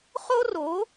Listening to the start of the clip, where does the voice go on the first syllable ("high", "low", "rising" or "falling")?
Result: high